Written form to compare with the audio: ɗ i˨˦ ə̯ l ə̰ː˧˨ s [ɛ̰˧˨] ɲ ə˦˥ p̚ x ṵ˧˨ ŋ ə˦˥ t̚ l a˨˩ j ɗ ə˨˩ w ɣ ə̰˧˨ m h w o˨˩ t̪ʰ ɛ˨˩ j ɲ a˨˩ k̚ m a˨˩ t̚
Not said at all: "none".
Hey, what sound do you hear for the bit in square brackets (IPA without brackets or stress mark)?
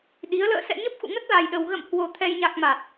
ɛ̰˧˨